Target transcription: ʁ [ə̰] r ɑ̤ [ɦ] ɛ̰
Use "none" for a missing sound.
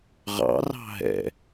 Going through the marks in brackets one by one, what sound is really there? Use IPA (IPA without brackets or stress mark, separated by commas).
ɑ̰, ɦ